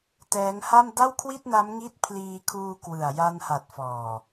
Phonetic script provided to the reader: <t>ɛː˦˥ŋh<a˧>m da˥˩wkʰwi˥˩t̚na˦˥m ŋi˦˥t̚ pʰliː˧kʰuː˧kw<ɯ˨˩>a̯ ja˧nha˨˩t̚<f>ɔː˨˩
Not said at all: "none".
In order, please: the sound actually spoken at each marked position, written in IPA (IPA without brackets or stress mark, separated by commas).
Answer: t, a˥˩, ɯ˨˩, f